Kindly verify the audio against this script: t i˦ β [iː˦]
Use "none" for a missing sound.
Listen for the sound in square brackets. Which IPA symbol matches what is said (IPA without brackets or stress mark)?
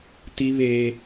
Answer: eː˦